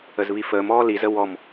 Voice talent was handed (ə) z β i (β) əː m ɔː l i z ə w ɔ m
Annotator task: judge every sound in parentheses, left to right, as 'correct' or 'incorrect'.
correct, incorrect

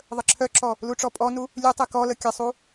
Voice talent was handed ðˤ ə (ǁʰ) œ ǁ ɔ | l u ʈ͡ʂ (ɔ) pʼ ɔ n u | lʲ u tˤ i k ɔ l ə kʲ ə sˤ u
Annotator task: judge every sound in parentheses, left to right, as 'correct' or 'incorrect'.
correct, correct

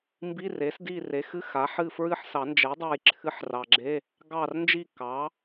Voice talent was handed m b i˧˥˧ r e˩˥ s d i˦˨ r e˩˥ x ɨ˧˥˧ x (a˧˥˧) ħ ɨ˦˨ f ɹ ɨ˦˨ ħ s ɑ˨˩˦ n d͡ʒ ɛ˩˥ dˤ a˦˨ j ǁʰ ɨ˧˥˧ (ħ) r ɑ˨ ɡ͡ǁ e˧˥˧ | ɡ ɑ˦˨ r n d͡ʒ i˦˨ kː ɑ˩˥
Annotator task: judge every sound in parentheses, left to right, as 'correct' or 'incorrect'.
incorrect, correct

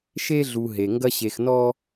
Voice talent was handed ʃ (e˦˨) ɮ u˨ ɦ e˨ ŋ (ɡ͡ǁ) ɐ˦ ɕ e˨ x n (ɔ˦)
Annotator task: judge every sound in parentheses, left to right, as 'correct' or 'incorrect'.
incorrect, incorrect, correct

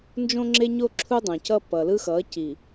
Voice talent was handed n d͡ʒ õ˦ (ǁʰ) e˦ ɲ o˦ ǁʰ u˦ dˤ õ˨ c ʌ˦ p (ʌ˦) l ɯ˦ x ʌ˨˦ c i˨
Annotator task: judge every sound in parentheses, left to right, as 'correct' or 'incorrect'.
incorrect, incorrect

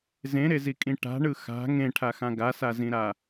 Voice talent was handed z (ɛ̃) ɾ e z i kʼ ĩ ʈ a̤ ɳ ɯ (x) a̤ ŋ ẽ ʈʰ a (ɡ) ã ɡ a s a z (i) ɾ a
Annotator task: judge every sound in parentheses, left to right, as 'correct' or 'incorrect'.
incorrect, correct, incorrect, incorrect

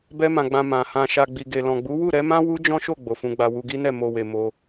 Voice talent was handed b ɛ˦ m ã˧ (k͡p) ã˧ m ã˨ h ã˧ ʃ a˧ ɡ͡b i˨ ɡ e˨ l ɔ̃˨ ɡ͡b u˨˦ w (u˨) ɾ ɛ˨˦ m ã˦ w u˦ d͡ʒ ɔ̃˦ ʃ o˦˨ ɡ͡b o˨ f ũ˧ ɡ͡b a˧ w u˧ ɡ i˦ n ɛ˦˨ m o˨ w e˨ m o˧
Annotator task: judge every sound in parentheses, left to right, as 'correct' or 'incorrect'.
incorrect, incorrect

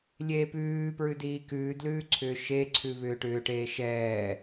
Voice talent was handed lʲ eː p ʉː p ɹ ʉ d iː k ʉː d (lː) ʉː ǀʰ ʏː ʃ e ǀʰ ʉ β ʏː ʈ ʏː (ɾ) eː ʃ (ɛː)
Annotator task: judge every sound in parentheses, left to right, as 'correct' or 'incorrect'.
incorrect, incorrect, correct

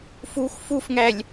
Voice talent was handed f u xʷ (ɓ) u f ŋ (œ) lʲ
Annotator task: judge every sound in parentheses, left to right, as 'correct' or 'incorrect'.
incorrect, incorrect

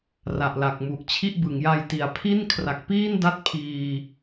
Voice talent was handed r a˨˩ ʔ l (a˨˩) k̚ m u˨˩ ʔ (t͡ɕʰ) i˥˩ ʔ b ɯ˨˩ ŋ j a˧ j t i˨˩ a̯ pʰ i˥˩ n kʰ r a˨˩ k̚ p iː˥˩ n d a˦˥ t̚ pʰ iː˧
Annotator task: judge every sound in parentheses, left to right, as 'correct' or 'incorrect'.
correct, correct

